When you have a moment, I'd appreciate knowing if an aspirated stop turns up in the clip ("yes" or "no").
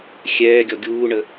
no